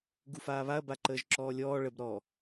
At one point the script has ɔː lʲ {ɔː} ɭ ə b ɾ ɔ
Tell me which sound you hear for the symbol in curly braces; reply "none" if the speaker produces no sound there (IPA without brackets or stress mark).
ɔː